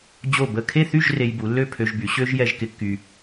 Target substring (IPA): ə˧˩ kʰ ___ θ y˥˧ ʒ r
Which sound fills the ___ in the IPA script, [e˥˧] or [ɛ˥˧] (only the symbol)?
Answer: e˥˧